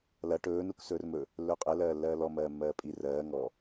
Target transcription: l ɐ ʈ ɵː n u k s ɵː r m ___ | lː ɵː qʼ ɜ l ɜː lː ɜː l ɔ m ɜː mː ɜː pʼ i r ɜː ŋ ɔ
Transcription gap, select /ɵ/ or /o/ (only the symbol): ɵ